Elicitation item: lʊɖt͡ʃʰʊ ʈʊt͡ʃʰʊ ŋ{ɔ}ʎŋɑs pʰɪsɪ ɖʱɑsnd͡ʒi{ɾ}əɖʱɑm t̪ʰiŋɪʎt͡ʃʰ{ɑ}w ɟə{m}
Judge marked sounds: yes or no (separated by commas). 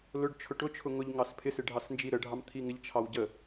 no, yes, yes, no